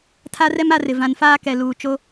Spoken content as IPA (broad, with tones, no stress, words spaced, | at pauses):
tʰa˦rɛ˦m a˦rɪ˨ vã˨nfaː˦ kɛ˨luː˨t͡ʃo˦